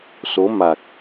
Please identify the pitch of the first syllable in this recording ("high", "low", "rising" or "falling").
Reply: rising